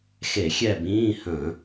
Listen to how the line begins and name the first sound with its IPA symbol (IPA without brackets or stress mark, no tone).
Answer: x